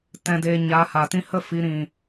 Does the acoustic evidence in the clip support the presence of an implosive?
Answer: no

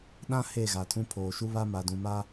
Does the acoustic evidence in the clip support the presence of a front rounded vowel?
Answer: no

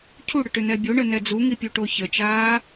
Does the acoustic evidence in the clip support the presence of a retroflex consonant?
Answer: yes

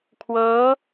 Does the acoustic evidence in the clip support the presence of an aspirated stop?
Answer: yes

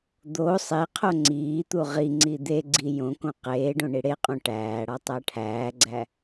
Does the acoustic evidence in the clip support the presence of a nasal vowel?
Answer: yes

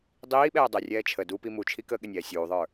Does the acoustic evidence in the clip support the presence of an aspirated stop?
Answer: yes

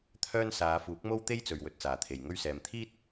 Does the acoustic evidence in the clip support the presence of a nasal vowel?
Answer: no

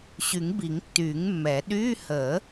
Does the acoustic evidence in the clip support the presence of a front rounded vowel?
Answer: yes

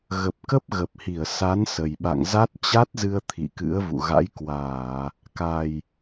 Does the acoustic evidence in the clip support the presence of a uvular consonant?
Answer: no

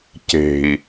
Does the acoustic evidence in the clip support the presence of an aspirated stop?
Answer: no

